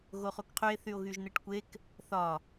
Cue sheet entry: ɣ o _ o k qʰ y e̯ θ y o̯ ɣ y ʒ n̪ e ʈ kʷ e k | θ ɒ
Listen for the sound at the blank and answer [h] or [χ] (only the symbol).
χ